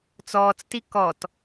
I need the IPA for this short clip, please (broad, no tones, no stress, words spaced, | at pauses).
t͡sɔːt͡sti kɔt